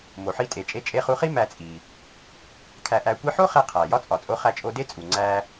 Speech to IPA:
mo˩ħi˧tʼe˩t͡ʃʼe˧ t͡ʃʼe˧χu˧χi˥ mæ˧t͡sʼi˩ | kʰæ˧ʔæ˧kʷi˥ ħo˥χe˧ qʰæ˩ jɒ˥t͡sʼɒ˩t͡sʼo˧ χæ˧t͡ʃʼo˧de˥t͡sʼu˩ ŋ͡ǀæ˧

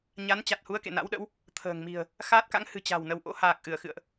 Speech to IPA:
ɲa˨˦nt͡ɕa˨˩t̚hu˨˦ə̯ kḛ˧˨na̰˧˥wɗə̰˧˥w | t̪ʰə̤ː˨˩ŋmi̤˨˩ə̯ | xaː˦˥t̚ka̰˧˥ŋhɨ̤˨˩ t͡ɕa̤˨˩w nə˨˦wʔo̰˧˥ haː˨˩k̚ ʔɨ˧˩ə̯xɨ̰˧˨ə̯ʔ

